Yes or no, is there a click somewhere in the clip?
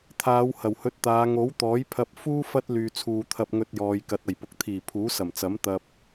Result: no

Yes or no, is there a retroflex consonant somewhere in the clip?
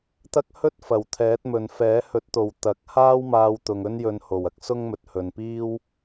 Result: no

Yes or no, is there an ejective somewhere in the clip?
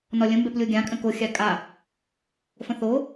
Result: yes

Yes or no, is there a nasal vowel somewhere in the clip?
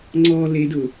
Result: no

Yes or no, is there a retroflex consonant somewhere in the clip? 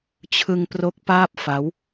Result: no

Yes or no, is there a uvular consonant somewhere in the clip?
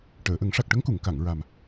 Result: no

